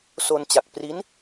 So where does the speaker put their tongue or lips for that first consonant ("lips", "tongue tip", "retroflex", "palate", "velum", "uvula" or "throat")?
tongue tip